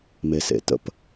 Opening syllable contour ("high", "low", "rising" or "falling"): low